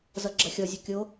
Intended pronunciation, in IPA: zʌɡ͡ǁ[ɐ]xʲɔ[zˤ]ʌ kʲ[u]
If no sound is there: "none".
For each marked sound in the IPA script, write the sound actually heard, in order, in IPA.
ɐ, zʲ, o

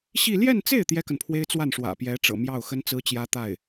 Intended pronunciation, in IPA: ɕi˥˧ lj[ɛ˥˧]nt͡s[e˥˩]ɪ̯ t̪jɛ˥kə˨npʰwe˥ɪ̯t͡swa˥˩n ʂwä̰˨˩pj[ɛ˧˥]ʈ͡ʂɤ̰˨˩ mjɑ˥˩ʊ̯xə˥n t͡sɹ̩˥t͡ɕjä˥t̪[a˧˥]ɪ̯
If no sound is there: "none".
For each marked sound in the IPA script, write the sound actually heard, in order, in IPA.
ɛ˥˧, e˥˩, ɛ˧˥, a˥˩

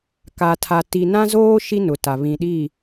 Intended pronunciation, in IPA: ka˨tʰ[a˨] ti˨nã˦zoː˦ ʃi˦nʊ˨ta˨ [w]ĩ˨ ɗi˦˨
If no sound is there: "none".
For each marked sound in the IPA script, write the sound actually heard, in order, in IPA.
a˨, β

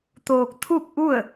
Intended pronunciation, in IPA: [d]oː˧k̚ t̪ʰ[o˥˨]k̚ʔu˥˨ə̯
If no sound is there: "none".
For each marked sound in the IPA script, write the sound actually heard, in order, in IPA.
t̪, u˥˨

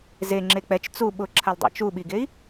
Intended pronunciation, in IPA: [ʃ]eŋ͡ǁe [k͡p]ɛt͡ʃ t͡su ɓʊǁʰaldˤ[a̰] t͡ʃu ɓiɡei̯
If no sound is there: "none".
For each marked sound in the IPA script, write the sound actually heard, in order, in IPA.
z, k͡p, a̰

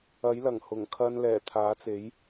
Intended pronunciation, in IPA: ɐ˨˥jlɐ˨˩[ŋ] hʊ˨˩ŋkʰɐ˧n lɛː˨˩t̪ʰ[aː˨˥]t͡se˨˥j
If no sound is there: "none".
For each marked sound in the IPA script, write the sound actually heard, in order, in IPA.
ŋ, aː˨˥

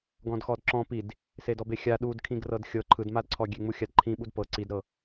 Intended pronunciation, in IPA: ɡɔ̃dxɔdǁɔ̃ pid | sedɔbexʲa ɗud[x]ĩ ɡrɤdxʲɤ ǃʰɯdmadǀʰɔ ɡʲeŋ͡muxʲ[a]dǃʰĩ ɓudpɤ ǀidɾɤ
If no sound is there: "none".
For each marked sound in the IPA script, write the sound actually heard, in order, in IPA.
kʰ, a

